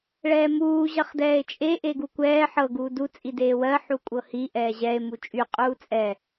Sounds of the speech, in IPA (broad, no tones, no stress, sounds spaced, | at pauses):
ɭ ɛː m uː ʑ ɐ χ d ɛː e̯ t͡ʃʼ e ʔ e ɡ u kʷ ɛː ħ ɤ ɡ uː d u t͡sʼ i d eː w ɜ ħ u kʷʼ ɤ h i ʔ ɛː ʑ ɛ e̯ m u t͡ʃʼ y qʼ uː t͡sʼ ɛ